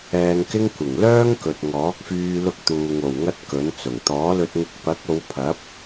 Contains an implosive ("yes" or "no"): no